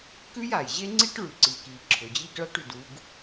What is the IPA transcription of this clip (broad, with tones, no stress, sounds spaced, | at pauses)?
k ʉ˥ j a˩ j ʑ e˥ ŋ͡ǀ i˥ ʈ ɭ ʉ˩ ǀ i˩ k i˩ ǁʰ ʊ˩ d͡ʑ i˥ ɡ ɭ a˥ ʈ ʉ˩ d u˥ ɡ